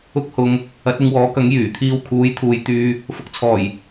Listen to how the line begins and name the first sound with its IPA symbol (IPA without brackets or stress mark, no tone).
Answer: ʊ